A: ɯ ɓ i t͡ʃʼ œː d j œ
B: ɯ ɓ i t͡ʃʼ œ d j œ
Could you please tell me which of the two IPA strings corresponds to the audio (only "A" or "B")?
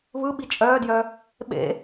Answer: A